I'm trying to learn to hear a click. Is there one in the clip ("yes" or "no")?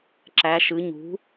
yes